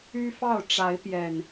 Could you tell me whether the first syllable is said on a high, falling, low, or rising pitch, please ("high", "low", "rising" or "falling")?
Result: high